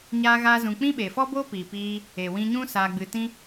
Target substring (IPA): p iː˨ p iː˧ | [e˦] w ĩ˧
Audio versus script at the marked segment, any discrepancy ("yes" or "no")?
yes